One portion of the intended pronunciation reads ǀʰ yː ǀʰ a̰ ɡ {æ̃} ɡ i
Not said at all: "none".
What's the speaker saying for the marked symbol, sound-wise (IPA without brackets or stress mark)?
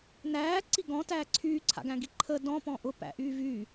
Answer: æ̃